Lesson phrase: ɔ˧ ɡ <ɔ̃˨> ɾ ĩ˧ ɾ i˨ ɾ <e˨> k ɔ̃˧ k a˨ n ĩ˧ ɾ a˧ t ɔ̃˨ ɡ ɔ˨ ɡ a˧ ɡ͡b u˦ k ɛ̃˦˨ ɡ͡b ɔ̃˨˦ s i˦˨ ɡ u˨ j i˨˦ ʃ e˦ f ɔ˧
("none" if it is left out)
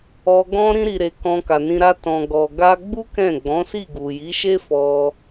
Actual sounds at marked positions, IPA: ɔ̃˦, e˨

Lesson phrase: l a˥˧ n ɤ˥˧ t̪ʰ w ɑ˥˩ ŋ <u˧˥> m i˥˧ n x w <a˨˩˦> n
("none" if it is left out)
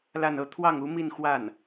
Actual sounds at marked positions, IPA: u˧˥, a˥˩

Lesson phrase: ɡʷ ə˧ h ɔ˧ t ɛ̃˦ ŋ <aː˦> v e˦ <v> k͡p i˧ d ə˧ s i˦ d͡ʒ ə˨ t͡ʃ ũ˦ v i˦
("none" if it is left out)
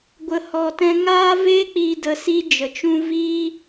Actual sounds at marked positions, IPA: aː˦, none

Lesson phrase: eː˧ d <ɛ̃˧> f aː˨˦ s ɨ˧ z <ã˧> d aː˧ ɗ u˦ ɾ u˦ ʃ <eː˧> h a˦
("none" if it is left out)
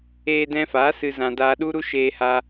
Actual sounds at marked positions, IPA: ɛ̃˧, ã˧, eː˧

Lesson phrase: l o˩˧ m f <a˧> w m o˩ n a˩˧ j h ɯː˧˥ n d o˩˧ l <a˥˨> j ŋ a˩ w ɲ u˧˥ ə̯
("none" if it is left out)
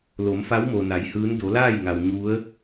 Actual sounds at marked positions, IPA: a˧˥, aː˥˨

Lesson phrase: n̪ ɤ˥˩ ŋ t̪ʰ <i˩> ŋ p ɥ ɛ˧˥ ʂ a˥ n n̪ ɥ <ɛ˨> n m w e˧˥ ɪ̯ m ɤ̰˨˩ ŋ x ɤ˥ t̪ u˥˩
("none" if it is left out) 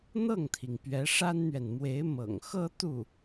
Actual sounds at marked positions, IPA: i˩, ɛ˨

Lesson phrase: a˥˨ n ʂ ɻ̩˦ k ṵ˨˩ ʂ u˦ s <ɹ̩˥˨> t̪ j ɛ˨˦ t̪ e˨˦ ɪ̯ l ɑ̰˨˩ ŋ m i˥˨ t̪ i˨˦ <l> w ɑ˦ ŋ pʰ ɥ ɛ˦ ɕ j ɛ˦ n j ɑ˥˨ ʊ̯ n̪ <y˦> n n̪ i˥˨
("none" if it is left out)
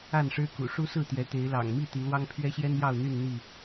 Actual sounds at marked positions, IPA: ɹ̩˥˨, l, y˥˨

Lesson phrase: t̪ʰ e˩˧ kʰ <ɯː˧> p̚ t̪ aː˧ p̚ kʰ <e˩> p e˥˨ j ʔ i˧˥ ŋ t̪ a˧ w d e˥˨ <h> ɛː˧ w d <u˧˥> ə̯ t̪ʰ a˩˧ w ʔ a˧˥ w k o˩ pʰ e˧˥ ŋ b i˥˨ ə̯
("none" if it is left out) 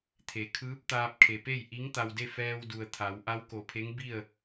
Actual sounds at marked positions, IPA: ɯː˧˥, e˩, f, u˩

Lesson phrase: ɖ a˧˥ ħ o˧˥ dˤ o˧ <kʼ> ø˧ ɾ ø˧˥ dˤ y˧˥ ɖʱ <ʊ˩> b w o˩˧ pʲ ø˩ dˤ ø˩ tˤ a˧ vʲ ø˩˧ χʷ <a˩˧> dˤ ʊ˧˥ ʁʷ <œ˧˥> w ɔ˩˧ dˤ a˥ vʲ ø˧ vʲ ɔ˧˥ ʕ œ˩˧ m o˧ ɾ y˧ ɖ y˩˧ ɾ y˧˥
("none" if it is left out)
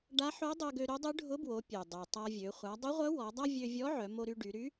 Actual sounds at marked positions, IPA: ɡ, ʊ˧˥, a˩˧, œ˧˥

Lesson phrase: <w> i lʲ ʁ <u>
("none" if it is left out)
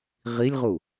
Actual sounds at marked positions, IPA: ʁ, u

